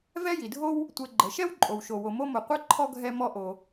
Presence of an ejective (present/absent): present